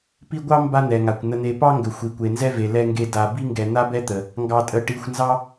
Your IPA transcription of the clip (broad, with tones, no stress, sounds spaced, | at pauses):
p i˦ ɡʷ ɑ˥ m b a˦ n̪ ɛ˩ ŋ a˩ kʷ n̪ ə˨ n̪ e˨ p ɑ˥ ŋ ɡ ə˩ xʷ i˩ kʷ e˩ n z ɛ˦ v e˩ l ɛ˨ ŋ ɡ e˨ d a˨ b i˦ ŋ ɡ ɛ˨ n̪ a˥ b ɛ˥ t̪ ə˩ | ŋ ɡ ɑ˨ tʼ ə˨ ʈ i˨ xʷ n z ɑ˥